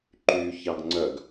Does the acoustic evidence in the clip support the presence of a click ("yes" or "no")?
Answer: yes